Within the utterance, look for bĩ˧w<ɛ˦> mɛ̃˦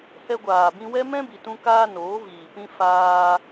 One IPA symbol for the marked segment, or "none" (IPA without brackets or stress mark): ɛ˦